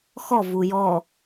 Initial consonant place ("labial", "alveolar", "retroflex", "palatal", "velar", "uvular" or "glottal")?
velar